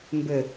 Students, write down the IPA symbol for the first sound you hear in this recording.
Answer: m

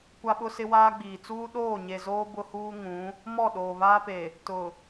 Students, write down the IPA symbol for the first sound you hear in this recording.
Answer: kʷ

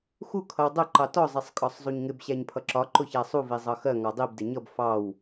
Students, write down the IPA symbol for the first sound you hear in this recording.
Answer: x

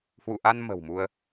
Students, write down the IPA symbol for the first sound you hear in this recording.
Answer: h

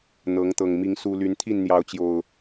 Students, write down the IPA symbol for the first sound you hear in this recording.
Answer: n̪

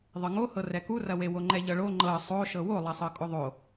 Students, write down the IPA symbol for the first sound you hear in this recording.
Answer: ðˤ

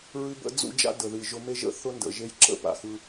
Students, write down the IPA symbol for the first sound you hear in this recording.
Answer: ɹ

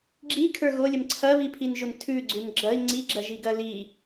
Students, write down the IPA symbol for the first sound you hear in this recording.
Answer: ɡ͡ǁ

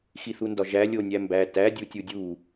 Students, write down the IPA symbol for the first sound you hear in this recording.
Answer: x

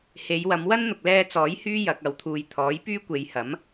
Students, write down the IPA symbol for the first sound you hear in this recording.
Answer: h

